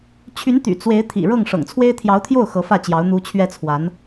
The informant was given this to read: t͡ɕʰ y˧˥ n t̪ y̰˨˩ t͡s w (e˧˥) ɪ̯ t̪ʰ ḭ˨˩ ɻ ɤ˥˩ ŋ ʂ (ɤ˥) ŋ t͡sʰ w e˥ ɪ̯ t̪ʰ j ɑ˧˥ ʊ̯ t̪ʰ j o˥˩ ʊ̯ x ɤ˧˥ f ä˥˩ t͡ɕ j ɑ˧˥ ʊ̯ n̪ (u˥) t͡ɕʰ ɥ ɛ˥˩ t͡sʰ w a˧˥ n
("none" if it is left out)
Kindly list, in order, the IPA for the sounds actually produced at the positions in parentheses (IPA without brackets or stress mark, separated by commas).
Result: e˧˥, ɤ̰˨˩, u˧˥